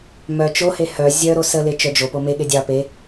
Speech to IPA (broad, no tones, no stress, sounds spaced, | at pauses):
m œ t͡ʃ o h e h œ zʲ œ ɾ o s ə l e t͡ʃ œ d͡ʒ o p o m e ɠ e dʲ ɑ p e